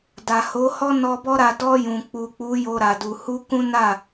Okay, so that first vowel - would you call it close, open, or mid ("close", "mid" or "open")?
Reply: open